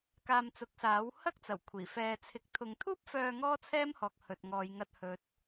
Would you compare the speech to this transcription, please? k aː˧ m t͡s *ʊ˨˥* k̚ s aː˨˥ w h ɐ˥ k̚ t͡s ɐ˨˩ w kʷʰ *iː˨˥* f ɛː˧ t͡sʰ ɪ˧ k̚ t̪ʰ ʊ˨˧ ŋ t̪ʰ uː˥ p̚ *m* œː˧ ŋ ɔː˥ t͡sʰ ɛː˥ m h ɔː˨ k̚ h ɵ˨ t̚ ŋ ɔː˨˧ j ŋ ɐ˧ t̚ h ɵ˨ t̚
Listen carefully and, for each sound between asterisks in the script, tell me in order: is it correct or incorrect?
correct, incorrect: iː˨˩, incorrect: f

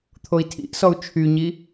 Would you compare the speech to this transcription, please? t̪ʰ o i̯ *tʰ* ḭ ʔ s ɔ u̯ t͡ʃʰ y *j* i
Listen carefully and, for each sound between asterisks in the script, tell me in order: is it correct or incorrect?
correct, incorrect: ɲ

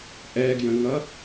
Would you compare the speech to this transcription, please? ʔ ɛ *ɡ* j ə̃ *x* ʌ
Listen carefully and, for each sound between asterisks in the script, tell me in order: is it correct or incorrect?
correct, incorrect: ŋ

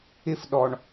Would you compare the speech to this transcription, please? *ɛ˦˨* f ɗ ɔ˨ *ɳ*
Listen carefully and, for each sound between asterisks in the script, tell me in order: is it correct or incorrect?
incorrect: ɪ˦˨, correct

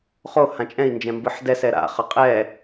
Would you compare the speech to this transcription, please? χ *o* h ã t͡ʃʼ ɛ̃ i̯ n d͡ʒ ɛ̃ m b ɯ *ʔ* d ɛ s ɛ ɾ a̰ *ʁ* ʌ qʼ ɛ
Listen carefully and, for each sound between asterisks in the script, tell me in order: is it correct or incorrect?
correct, incorrect: ħ, incorrect: χ

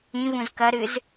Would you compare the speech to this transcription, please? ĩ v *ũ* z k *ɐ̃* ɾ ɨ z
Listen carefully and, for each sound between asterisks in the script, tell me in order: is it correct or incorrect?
correct, incorrect: ɐ

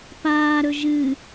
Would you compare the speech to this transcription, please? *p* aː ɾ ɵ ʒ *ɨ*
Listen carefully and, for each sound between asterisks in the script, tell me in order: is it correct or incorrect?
correct, correct

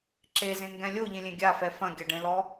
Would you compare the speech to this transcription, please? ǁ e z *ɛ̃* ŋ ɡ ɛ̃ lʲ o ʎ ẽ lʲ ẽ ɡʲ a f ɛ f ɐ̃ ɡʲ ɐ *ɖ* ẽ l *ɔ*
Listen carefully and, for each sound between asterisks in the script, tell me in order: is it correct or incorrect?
incorrect: ẽ, correct, correct

